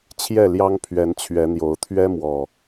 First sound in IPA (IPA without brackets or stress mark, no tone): t͡ɕʰ